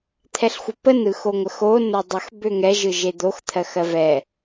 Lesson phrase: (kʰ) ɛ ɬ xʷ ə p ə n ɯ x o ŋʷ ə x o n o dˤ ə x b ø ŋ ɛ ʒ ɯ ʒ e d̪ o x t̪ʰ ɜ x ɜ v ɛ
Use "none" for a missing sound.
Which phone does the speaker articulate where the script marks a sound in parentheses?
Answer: t̪ʰ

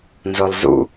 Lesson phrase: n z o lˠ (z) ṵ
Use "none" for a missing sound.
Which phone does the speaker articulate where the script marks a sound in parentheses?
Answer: z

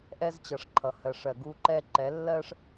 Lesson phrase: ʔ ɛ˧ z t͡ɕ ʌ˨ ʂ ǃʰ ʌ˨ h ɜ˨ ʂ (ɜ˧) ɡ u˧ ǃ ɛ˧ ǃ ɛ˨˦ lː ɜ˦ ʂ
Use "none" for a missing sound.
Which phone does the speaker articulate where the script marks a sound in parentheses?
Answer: ɜ˨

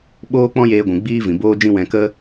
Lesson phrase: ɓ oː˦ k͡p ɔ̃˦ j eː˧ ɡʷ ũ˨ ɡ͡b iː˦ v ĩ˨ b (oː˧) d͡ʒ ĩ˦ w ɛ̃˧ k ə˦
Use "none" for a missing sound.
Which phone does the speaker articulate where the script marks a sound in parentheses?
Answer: oː˦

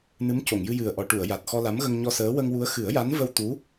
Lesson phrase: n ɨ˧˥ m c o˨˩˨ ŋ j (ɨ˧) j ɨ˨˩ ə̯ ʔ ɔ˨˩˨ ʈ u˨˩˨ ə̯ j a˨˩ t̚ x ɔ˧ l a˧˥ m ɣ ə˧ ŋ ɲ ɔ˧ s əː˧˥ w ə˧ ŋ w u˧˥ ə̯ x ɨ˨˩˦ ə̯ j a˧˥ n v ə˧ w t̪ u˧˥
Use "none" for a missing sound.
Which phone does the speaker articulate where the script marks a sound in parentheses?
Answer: ɨ˧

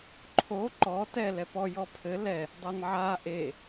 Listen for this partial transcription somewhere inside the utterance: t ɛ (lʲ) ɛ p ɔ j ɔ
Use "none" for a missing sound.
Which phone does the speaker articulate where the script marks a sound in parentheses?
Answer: l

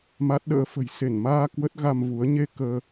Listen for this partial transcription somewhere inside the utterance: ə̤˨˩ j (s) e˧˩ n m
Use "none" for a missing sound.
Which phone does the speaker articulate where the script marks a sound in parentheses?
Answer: s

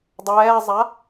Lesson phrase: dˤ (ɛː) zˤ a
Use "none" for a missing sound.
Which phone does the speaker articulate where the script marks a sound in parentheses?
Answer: ɛː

